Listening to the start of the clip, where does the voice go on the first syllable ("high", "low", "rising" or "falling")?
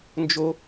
high